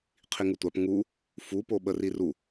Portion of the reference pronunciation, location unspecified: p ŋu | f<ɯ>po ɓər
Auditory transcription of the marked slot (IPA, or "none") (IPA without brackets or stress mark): u